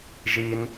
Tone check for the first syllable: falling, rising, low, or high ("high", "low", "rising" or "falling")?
high